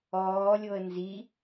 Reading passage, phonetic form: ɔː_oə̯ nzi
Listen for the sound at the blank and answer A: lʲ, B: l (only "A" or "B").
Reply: A